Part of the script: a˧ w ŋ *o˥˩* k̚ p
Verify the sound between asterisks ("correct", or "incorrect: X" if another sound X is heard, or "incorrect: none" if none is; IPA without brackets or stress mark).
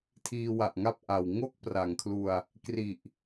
correct